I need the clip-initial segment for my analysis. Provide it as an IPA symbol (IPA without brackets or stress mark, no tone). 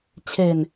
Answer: t͡ɕʰ